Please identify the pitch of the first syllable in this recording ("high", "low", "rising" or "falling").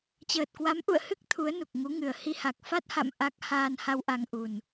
low